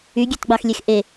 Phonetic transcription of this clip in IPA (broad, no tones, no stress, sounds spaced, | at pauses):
y ɡʲ ø t ɡ͡b ɑ x lʲ e x ʔ e